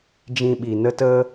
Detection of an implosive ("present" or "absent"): present